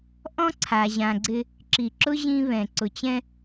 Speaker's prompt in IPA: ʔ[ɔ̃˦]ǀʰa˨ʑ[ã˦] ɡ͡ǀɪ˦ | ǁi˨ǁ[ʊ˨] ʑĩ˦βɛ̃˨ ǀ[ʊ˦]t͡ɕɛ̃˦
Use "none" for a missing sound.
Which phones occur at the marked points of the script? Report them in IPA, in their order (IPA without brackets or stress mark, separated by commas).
ɔ̃˦, ã˨, ʊ˦, ʊ˨